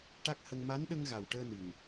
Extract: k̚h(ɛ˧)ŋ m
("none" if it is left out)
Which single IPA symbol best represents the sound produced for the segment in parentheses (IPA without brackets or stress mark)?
ə˧